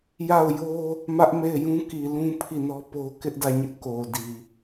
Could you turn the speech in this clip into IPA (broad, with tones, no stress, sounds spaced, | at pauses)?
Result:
j a˦˨ ʊ̯ j o˦ | m ä˦ ʔ m e˦˨ ɪ̯ j ũ˦ k i˨ l ũ˦ pʰ i˦˨ n ɔ˦ p o˦ k ɪ˦ ʔ d ä˦˨ ɲ ɪ˦ ʔ k o˨ d i˨